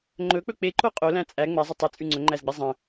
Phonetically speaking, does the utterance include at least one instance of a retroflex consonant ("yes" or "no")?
no